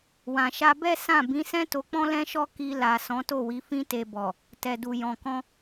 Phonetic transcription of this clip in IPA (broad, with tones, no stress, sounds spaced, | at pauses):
w ã˨ ʃ a˧ b ɛ˦ s ã˦˨ b ĩ˨˦ s ɛ̃˦ t o˧ k͡p ɔ̃˦ l ɛ̃˦ ʃ ɔ˦ k i˧ l a˨ s ɔ̃˨˦ t o˦˨ w i˨˦ f ĩ˧ t e˨ b ɔ˨ | t ɛ˨ d u˨ j ɔ̃˨ k ɔ̃˧